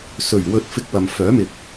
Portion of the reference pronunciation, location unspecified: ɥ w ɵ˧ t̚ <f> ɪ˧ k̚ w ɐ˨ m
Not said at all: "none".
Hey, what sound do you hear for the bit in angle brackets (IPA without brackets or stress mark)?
f